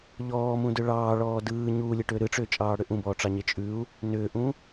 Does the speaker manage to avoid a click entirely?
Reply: yes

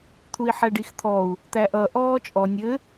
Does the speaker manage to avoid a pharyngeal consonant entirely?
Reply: no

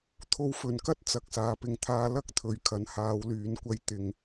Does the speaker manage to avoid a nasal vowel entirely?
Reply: yes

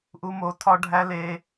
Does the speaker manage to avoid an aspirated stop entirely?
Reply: no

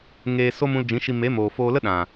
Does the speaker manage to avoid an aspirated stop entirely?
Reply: yes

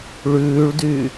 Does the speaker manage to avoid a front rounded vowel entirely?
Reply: no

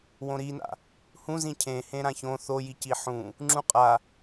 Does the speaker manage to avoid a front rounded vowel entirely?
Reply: yes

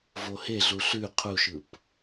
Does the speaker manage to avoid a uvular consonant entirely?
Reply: no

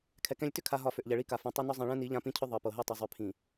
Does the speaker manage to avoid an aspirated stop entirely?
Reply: no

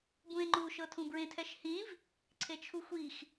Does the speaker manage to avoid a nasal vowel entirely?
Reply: no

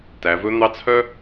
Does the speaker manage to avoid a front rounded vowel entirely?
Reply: no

